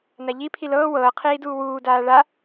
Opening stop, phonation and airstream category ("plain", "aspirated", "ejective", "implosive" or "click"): aspirated